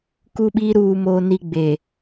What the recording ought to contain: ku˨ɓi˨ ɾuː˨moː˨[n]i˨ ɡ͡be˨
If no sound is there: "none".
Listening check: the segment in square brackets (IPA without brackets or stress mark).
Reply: n